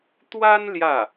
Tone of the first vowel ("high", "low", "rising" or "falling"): high